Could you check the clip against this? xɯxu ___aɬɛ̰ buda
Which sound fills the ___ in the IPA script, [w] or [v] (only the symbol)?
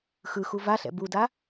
v